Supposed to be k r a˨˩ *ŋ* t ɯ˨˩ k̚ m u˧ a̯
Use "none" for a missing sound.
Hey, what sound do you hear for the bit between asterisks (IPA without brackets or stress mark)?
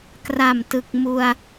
m